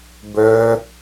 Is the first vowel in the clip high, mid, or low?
mid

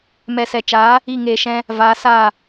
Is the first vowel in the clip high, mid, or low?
mid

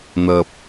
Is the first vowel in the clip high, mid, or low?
low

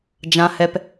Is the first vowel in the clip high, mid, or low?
low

